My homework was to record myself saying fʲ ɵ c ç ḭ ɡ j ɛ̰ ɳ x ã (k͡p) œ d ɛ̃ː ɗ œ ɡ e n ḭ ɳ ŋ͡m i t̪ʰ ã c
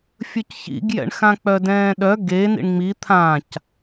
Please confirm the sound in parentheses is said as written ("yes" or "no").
yes